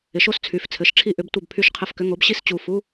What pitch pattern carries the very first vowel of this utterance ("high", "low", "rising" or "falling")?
rising